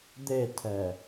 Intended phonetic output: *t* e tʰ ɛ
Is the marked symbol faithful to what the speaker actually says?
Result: no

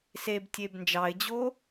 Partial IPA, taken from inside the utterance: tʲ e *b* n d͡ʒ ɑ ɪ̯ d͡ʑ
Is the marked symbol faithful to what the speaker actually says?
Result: yes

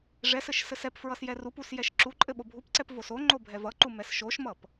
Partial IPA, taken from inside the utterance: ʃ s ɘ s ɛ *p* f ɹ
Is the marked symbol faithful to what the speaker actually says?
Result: yes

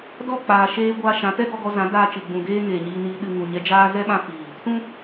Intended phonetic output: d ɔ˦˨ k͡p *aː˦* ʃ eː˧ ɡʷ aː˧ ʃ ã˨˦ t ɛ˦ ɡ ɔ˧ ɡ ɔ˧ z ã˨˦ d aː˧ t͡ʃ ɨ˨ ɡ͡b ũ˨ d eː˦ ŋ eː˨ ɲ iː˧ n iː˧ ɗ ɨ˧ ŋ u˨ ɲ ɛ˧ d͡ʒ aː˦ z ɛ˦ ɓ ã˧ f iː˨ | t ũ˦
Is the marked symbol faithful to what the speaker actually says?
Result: no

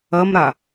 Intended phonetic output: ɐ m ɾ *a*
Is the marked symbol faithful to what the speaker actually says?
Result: yes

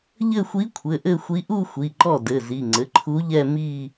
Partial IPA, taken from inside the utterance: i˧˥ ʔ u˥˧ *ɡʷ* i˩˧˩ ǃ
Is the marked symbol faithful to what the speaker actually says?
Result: no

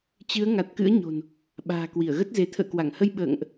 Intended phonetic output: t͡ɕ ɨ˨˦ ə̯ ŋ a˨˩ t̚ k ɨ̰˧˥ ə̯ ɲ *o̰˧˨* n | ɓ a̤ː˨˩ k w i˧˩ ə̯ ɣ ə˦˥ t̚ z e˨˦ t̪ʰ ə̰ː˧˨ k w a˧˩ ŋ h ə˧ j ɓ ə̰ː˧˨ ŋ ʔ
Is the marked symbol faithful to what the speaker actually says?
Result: no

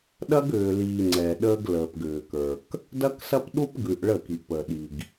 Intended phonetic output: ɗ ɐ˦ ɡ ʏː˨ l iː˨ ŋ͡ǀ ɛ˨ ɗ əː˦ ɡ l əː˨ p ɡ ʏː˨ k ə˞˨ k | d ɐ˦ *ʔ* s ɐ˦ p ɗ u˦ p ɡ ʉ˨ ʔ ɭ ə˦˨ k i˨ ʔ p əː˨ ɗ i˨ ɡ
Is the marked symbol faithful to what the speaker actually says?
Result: no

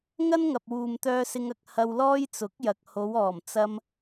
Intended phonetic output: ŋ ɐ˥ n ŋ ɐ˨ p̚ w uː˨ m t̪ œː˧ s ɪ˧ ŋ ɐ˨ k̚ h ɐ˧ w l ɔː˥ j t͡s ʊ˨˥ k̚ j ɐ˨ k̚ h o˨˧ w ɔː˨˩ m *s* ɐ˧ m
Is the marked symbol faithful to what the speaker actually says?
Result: no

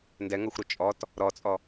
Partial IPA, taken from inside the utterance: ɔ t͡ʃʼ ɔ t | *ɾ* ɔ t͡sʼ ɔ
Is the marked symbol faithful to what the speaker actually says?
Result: yes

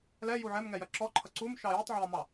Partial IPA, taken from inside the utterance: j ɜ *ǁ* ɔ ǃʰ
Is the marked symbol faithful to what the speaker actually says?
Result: yes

